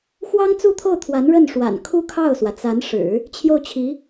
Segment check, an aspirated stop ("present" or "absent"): present